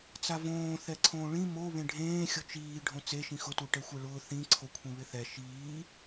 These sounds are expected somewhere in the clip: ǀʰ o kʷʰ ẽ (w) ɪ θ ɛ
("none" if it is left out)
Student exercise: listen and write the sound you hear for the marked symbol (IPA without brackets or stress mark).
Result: β